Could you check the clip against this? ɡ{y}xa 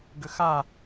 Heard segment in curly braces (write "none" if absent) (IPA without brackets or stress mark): ʏ